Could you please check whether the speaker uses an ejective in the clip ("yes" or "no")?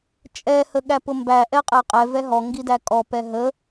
yes